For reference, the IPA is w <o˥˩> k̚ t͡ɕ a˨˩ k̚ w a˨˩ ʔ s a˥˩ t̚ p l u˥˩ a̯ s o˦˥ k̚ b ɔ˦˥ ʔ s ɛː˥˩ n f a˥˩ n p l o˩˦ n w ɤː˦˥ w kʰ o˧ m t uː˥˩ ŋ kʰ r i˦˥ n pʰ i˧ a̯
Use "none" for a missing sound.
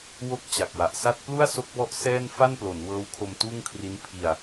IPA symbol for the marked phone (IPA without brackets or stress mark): o˦˥